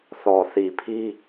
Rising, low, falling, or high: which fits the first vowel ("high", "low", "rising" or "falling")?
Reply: low